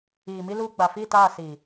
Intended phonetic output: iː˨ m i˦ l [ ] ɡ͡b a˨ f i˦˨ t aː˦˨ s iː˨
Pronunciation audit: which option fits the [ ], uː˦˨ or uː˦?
uː˦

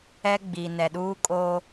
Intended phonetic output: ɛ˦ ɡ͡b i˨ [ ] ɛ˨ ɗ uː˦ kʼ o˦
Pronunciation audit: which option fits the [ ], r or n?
n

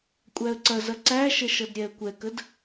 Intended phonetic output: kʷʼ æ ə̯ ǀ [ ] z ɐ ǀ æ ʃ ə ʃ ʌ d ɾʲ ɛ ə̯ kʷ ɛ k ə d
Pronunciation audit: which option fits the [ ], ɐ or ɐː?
ɐ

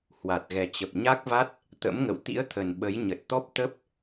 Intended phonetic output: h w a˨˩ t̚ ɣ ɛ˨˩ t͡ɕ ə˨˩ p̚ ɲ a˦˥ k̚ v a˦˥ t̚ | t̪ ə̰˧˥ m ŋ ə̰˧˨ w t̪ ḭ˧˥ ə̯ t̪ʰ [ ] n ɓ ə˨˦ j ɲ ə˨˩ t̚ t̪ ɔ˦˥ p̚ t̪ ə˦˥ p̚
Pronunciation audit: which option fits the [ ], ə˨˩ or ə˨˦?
ə˨˩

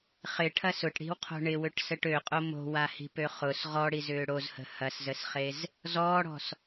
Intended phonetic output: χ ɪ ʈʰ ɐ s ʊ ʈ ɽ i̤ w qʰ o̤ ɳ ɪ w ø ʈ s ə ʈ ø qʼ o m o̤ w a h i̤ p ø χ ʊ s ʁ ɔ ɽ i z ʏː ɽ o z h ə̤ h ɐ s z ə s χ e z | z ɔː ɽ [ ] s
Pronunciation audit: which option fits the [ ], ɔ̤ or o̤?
ɔ̤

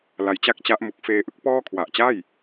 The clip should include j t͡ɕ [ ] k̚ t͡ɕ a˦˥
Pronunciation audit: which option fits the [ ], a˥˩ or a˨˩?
a˥˩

